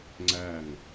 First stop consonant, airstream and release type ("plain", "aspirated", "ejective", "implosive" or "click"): click